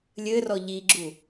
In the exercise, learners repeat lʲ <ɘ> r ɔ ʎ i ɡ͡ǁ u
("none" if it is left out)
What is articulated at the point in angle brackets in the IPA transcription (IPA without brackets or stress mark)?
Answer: ɘ